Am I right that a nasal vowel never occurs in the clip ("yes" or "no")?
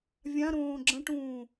no